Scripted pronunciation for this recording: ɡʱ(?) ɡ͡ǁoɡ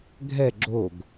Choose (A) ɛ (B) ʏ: A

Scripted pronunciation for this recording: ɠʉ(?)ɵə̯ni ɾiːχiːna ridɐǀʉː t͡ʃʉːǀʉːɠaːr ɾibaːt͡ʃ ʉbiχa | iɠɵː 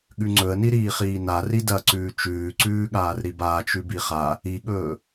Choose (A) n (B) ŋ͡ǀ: B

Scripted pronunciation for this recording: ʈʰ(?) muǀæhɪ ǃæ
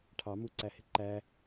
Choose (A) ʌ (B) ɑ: B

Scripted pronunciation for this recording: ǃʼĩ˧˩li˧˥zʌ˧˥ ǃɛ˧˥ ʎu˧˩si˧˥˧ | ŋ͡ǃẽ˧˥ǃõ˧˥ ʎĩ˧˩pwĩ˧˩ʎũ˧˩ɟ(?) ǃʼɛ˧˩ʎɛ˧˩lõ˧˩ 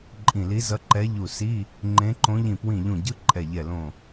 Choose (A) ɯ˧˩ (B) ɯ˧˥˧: B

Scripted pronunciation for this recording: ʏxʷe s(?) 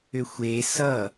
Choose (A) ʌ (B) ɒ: A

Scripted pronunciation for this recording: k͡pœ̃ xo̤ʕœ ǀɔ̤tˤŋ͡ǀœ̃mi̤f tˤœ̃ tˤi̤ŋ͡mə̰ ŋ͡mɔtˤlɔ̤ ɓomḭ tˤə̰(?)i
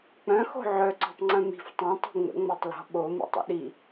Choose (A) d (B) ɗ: B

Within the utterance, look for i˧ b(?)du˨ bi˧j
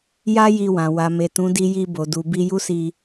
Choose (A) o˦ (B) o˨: B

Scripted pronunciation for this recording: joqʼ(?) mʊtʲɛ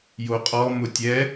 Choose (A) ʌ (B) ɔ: B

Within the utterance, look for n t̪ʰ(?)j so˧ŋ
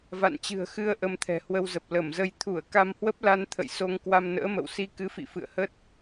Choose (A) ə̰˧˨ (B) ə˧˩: A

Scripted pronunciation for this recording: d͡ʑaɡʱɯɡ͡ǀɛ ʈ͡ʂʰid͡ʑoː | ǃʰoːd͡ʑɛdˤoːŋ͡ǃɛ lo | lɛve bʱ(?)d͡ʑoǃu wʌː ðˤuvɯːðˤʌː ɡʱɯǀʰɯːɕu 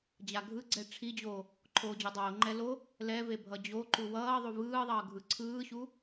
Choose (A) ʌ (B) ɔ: A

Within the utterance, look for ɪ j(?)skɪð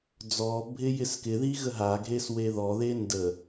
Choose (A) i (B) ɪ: B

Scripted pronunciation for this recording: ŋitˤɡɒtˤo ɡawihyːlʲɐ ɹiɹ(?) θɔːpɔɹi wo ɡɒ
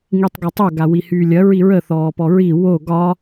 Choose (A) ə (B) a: A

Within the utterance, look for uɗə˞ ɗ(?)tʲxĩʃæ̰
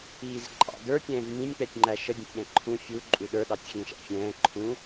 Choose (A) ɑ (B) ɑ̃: A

